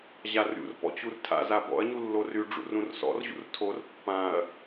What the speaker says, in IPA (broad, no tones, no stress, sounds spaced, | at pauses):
ʑ a r ɾʲ ṵ r p ɔ̰ t͡ɕ u r tʰ a̰ z a b ɔ̰ ɐ̯ ɲ u lː o r y ɖ͡ʐ ṵ r ũ r s ɔ̰ r ʑ ṵ r tʰ o r pː ã ɐ̯